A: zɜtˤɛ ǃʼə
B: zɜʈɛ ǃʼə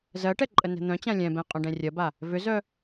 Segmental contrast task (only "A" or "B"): B